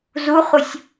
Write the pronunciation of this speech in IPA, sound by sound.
z u χ u sʲ

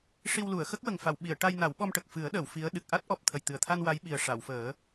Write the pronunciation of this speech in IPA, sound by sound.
ʂ i˧ w l u˨˩˨ ə̯ x ə˦˥ k̚ w ə˨˩ ŋ f a˨˩˨ w ɓ i˨˩˨ ə̯ ʈ a˧ j n a˨˩˦ w ɓ ɔ˧ m ʈ ə˨˩ k̚ f ɨ˨˩˦ ə̯ ɗ əː˨˩˨ w f i˧˥ ə̯ ɗ ɨ˨˩ k̚ ʔ a˦˥ t̚ ʔ ɔ˨˩ p̚ t̪ʰ ə˨˩ j t̪ ɨ˨˩ ə̯ t̪ʰ a˧ n w a˧˥ j ɓ i˨˩ ə̯ ʂ a˨˩˨ w f əː˨˩˦

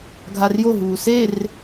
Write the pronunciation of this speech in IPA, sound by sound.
ɡʱ a r j o ɦ uː s e r

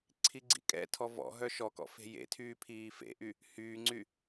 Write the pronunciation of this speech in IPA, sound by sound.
ǀʰ i ɡ͡ǀ ḭ kʼ ɛ̰ tʰ ɔ v ɔ̰ ɦ œ ʃ ɔ k ɔ̰ f e̤ j ḛ tʰ yː pʰ iː f ḛ ʔ y | h yː ŋ͡ǀ y

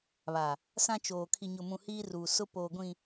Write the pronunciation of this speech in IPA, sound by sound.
β a˨ | s ã˦ t͡ʃ oː˨ kʰ i˨ ɲ ʊ˨ m ũ˨ h iː˦ r u˨ s ʊ˦ p oː˨ ɡʷ ĩ˨

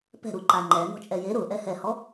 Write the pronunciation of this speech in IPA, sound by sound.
p ɛ̤ ɾ u ǃ a ŋ͡ǃ ɛ n ɔ̤ t͡ʃʼ ɛ j e ɾ ʊ ʔ ɛ h ɛ h ɔ

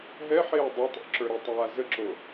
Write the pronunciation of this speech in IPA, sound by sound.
ɦ ɛ ħ eː dˤ e tˤ o̰ ǁ ə˞ ɾ e tˤ aː z ə ǁ o

